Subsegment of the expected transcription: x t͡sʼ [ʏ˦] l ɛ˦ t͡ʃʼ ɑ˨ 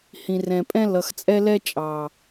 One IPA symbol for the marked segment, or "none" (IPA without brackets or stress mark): ɛ˦